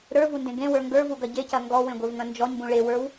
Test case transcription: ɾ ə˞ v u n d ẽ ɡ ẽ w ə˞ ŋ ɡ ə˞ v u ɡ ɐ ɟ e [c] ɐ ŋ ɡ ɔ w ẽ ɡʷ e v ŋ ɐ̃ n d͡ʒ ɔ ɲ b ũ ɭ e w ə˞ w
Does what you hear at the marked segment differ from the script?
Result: no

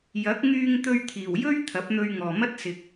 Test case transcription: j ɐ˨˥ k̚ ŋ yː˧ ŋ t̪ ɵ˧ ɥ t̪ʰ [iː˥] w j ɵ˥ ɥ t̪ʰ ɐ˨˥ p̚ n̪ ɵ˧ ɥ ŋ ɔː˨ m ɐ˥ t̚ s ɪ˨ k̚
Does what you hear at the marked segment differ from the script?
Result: yes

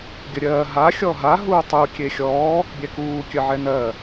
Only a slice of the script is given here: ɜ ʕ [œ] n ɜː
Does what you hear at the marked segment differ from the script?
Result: yes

